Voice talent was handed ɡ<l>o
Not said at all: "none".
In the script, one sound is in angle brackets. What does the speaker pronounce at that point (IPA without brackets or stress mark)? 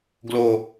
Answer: l